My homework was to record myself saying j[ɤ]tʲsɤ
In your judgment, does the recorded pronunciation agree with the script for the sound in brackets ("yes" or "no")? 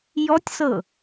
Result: no